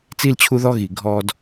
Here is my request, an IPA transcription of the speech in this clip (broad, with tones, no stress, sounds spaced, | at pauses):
t͡s i˧ l t͡ɕʰ u˧ ð ɔ˧ ɣ i˩ ɡʱ ɔ˧ d